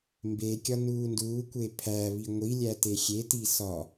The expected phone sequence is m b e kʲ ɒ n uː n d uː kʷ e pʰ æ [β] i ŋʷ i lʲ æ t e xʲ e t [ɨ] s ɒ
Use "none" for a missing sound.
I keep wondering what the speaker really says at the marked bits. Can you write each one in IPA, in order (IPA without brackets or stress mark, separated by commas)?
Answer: β, i